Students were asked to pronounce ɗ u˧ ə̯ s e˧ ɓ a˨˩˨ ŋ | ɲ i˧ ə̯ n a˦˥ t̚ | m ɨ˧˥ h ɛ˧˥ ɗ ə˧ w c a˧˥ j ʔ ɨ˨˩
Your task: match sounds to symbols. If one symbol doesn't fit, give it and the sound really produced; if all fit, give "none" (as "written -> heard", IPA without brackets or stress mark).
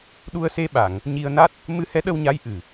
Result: c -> ɲ